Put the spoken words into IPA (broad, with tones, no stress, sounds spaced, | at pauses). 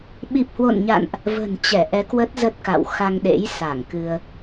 ɓ i˨˩ p̚ h w o̰˧˨ n ɲ a̰˧˨ n ʔ | v ə̤˨˩ n t͡ɕ ɛ˧˩ ʔ ɛ˨˦ k w ə˦˥ t̚ z ə˦˥ t̚ k a̰˧˨ w x a˧ ŋ ɗ ḛ˧˥ j s a˧˩ ŋ k ɨ˧ ə̯